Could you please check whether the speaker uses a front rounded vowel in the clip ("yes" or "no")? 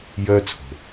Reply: yes